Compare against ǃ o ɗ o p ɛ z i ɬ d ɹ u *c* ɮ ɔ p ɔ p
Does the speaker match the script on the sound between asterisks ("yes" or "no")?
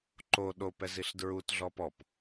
no